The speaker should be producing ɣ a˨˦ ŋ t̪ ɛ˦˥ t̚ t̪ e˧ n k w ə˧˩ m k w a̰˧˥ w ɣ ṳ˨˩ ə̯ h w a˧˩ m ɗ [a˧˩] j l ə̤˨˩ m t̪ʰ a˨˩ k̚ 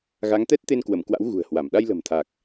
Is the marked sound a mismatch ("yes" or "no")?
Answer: yes